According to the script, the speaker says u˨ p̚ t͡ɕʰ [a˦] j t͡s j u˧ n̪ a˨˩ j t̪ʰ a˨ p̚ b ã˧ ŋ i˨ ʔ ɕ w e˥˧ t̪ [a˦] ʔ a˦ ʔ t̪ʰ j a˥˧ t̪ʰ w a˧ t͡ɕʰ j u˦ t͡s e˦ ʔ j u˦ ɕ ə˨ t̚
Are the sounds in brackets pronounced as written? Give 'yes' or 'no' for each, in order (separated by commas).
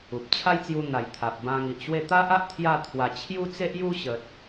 yes, yes